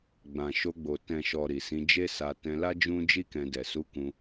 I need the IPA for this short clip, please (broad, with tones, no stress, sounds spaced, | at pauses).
ɡ͡b ã˨ ʃ o˧ ɡ͡b o˨ t ɛ̃˨ ʃ ɔ˨ ɾ i˨ s ĩ˨˦ d͡ʒ e˦ s a˧ t ɛ̃˧ l a˦ d͡ʒ ũ˦ d͡ʒ i˦ k ɛ̃˧ d ɛ˨ s u˨˦ k ũ˧